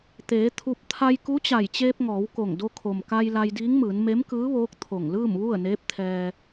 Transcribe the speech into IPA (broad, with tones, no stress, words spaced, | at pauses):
t̪eː˩˧ t̪ʰu˧p̚ t̪ʰa˧jku˧˥t͡ɕa˧˩jt͡ɕeː˧p̚ ŋɔː˩˧wko˧˩ŋ do˧kʰo˩mka˧j la˧jdiː˧˥ŋmɯː˩˧n me˧˥mkɯː˧˥ʋoː˧˥k̚ t̪ʰo˧˩ŋlɯː˥˨mʋu˥˨ə̯ neː˧˥p̚t̪ʰɛː˧